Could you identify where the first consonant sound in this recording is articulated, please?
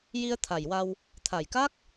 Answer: palatal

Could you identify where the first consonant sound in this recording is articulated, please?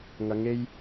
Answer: velar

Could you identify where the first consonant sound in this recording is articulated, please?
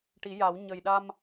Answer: retroflex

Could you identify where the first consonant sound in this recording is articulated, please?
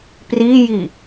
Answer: labial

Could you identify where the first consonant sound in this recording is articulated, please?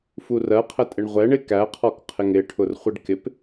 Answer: labial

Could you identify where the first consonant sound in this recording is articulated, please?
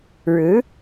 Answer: retroflex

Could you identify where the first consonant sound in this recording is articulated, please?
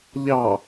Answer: palatal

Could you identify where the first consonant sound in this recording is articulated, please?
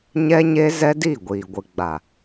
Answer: palatal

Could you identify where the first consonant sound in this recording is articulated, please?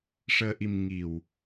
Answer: retroflex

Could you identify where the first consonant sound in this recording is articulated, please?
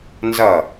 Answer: alveolar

